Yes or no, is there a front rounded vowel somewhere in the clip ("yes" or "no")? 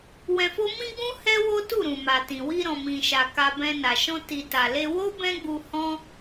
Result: no